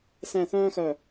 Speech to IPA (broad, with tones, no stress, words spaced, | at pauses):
sɛ̃˥˧ θœ̃ː˥xœ˧˩